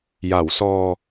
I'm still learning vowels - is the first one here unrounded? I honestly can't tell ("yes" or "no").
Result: yes